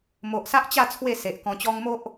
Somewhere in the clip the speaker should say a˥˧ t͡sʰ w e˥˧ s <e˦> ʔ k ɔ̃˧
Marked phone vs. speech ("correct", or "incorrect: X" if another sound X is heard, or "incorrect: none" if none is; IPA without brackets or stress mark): incorrect: e˨